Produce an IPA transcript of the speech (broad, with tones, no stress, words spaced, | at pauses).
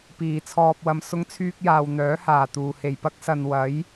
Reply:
piː˨t͡sʰɔː˧p̚wɐ˧m sʊ˥ŋt͡sʰyː˥k̚jaː˧w n̪œː˨˥ haː˨˩t̪uː˨˩ he˨˩jpɐ˥k̚sɐ˨n wɐ˨˥j